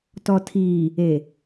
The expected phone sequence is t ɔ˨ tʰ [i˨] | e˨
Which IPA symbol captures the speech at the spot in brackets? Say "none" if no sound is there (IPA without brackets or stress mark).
iː˨